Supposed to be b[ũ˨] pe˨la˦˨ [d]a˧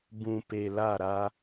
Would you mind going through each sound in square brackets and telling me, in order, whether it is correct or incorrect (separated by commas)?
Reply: correct, incorrect